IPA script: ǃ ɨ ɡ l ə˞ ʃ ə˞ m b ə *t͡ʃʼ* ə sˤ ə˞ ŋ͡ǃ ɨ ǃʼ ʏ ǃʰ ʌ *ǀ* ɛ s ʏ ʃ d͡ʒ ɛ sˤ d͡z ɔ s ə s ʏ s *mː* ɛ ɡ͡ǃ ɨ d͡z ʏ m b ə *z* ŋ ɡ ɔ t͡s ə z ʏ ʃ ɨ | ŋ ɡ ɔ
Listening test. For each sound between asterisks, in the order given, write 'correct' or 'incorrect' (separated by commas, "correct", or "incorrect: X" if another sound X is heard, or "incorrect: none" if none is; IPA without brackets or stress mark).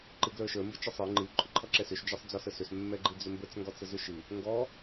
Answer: incorrect: t͡ʃ, incorrect: ǁ, correct, incorrect: t͡s